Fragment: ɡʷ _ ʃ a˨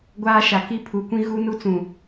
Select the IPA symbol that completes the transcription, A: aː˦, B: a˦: A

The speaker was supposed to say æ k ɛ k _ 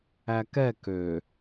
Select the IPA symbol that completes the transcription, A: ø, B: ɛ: A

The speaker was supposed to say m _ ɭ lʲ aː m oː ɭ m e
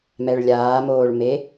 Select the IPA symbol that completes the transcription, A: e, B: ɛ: B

